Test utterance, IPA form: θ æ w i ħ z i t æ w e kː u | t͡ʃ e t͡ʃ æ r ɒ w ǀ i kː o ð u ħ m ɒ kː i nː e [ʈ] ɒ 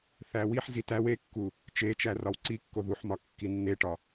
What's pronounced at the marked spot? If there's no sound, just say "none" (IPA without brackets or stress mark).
ʈ